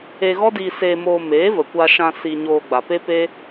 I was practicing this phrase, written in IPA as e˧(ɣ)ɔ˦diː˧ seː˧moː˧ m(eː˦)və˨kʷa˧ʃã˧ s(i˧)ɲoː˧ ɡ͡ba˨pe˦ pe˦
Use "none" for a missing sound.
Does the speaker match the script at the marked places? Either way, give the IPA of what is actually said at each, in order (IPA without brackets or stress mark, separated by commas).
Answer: ɣ, eː˨˦, i˧